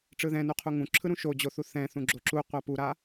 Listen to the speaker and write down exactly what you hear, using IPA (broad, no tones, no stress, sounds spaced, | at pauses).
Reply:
ʈ͡ʂ ɯ ð ɛ̃ n u qʰ u ŋ ũ ǁʰ ɯ ɾ ũ ʃ o d͡ʑ o θ u θ ɛ̃ θ ũ ɡ͡ǁ o ǁ u qʷ a p u ɾ a